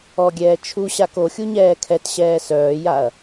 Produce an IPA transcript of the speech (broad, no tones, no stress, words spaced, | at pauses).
ɔɡʲɛː t͡ʃʰuɕak oxʲu ɲɛːkʰɛtɕɛː sœːjaɐ̯